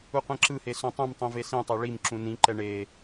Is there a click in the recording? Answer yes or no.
yes